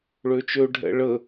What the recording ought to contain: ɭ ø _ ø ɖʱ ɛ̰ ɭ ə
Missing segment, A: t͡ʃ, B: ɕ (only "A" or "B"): A